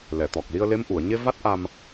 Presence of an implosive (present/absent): absent